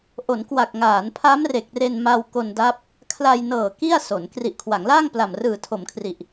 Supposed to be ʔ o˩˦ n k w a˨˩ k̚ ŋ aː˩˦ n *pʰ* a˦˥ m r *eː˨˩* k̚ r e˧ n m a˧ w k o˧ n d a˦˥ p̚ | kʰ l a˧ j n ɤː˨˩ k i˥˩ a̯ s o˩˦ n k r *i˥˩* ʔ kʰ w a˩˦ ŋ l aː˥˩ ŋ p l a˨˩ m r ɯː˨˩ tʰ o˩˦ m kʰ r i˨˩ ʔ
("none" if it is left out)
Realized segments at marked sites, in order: pʰ, e˨˩, i˨˩

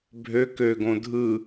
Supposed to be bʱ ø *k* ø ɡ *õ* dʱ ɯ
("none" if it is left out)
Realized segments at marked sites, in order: k, õ

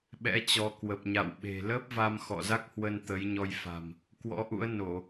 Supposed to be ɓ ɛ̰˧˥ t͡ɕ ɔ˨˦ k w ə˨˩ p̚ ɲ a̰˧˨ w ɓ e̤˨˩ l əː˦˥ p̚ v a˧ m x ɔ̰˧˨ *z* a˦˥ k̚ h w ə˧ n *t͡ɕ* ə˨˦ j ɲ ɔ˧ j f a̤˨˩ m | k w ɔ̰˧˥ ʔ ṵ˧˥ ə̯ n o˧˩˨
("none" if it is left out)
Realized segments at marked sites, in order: z, t̪

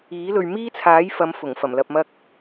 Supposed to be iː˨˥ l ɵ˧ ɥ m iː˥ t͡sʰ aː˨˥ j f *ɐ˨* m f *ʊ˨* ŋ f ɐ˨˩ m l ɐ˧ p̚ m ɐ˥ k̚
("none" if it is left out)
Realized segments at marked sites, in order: ɐ˨˧, ʊ˨˩

